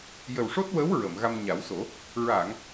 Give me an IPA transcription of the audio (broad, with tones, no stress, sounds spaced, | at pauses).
j ə˨˩ w ʂ o˦˥ t̚ w ə˧˥ w ɹ ə˨˩˨ m ɣ a˧ m ɲ a˨˩˦ w s o˨˩˦ | ɹ a˨˩˨ ŋ